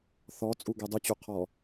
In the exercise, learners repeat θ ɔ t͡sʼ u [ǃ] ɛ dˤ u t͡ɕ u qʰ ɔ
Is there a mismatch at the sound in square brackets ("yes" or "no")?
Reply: yes